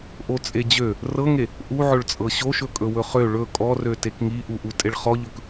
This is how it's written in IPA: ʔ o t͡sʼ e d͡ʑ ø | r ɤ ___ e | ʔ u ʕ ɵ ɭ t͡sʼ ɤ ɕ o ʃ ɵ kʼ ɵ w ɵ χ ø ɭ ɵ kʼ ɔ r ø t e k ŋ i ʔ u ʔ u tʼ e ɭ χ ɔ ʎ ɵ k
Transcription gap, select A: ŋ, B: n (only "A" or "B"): A